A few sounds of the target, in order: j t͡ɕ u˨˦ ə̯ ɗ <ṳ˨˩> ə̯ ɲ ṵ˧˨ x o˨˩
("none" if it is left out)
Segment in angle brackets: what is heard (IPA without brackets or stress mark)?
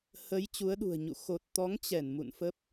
ṳ˨˩